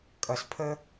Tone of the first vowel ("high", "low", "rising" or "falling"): low